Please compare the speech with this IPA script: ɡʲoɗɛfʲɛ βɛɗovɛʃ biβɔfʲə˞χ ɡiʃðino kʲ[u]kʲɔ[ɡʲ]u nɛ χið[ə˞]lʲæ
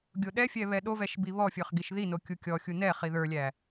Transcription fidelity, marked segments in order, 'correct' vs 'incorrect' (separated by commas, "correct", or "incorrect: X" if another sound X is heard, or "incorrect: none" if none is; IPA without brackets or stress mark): correct, incorrect: xʲ, correct